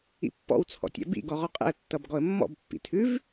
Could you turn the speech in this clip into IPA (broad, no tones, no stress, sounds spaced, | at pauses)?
ḭ pː ɔ̰ w t͡sʰ ɔ̰ tʲ ɛ̰ b ḭ ɡ ɔ ʁ ɔ qʼ ɛ̰ ə̯ tː ʌ b ɡ ɔ ə̯ mː ɔ̰ b pː ḭ tʰ ʉ v